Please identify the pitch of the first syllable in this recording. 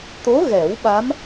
rising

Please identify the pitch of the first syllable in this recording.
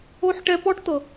high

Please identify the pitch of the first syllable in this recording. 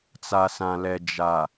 low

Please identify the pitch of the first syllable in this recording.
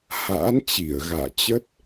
rising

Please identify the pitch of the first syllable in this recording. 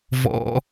high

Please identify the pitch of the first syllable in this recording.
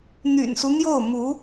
low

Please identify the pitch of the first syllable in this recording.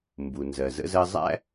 low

